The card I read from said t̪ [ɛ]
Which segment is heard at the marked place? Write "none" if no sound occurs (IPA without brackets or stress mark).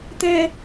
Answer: ɛ